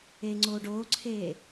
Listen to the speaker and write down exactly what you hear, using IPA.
e ŋ͡ǀ o ɖ o ǀʰ e

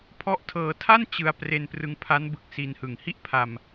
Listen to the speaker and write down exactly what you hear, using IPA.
pʰ ɔ˦˥ ʔ tʰ ɤː˧ tʰ a˥˩ n t͡ɕ ɯ˧ a̯ p r e˧ n p r ɯ˧ ŋ pʰ a˦˥ n b ɯ˨˩ k̚ s i˧ n h ɯ˨˩ ŋ h i˥˩ ʔ pʰ a˧ m

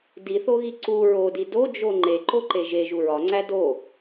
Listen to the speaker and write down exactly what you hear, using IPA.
d i θ o ɣ i ǀ u ɹ o d i d o d͡ʒ o ŋ͡ǃ e ǃ o ǃ e ʒ e ʒ u ɹ ɒ ŋ͡ǀ æ d o

